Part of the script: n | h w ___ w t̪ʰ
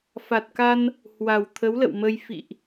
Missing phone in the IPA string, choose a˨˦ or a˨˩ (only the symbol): a˨˩